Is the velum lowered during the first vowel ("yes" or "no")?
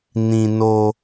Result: yes